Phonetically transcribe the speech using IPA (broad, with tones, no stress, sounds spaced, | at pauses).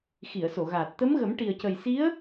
x i˨˩˨ ə̯ s o˨˩˨ ɣ aː˨˩ t̚ t̪ ə˧˥ m ɣ ə˨˩˦ m ʈ i˨˩ ə̯ c ə˨˩ j s i˧˥ ə̯